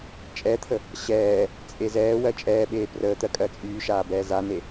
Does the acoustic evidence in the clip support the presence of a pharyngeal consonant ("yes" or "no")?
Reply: no